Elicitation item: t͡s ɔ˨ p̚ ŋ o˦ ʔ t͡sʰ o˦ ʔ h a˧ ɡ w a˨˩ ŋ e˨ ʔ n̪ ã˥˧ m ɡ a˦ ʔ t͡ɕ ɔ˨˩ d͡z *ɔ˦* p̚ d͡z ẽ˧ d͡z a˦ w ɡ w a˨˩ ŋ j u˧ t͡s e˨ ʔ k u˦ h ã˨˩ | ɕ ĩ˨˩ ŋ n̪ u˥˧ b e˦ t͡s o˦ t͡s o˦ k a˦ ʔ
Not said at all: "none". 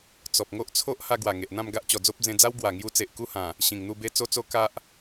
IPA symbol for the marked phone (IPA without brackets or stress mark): o˦